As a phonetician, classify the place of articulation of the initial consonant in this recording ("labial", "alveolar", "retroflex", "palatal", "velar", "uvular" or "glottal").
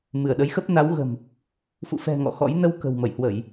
labial